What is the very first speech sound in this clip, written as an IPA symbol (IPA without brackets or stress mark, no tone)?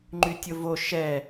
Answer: ŋ͡ǃ